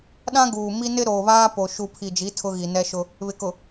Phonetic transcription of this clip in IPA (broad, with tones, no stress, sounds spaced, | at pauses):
ɗ ã˦ ɡ uː˨ m i˦ n ɪ˦ ɾ oː˨ β aː˦ p o˨ ʃ u˨ pʰ i˨ d͡ʒ i˨˦ tʰ ʊ˦ ɣ i˨ n ɛ˦ ʃ ʊ˦ | β ɪ˨ k ʊ˨